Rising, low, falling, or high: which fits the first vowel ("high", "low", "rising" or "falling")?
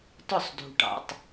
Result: falling